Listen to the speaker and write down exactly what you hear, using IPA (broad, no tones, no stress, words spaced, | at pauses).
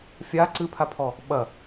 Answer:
fʲa ǀɨpʰapʰɔ | ɓɐ